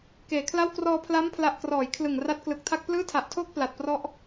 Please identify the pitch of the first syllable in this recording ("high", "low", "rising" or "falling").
low